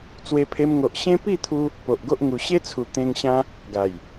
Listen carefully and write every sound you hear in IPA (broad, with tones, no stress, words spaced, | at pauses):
t͡swe˧pʰe˧mŋo˨ʔ ɕẽ˦ pi˥˧t̪ʰu˧ | po˨ʔɡo˦ʔ ŋu˧ ɕe˦t͡sʰu˨˩ t̪ẽ˧ŋ ɕã˦ | ɡa˨˩j